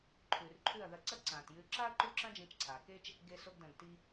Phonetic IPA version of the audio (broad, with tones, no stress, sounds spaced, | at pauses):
ǃʰ ʉ˨ r ǃʰ ʉ˦˨ ɐ̯ ð ɐ˧ ǀ ɐ˦ ǀ ãː˨ t j ʉ˧ ǁ a˦ ɐ̯ ǃ u˦˨ ǁ ɐ̃˦ d͡ʒ ĩ˧ t͡ʃ ǀʰ aː˨ k e˦ t͡ʃ | ɡ e˧ s o˧ ɡ d ɐ̃˨ ɡ t i˧